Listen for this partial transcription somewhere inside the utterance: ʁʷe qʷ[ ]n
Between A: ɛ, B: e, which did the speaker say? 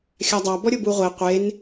B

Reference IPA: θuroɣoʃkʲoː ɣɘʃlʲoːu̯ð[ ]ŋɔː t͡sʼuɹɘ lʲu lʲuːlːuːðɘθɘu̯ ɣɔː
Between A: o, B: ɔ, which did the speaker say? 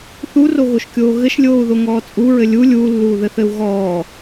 A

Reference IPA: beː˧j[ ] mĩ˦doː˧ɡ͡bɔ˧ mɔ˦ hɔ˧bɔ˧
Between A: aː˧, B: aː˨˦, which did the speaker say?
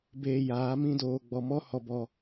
B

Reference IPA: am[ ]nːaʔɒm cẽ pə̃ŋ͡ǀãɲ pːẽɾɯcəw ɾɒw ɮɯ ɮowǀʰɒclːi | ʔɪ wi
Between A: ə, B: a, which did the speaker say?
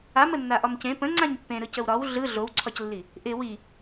A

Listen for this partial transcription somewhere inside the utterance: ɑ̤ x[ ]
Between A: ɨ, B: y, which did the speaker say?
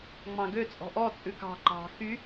B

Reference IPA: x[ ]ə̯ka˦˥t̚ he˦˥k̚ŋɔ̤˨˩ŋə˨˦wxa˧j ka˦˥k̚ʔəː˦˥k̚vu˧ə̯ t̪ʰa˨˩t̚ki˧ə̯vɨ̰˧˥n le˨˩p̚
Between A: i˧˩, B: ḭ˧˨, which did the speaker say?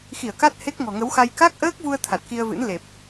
A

